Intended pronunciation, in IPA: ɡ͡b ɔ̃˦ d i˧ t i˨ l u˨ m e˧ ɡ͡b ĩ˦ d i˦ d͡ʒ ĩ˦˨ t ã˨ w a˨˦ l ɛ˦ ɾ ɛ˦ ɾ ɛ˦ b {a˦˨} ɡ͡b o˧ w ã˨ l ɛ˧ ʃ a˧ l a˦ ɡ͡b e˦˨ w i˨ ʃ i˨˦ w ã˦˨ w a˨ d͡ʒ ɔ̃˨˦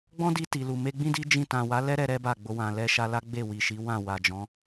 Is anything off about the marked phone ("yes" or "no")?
no